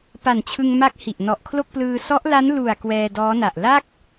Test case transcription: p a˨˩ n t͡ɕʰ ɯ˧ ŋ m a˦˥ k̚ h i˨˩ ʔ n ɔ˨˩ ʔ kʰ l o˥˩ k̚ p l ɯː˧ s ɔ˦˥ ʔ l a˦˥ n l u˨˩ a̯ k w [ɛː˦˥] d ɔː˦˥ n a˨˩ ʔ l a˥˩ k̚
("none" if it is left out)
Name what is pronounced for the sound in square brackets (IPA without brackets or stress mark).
ɛː˧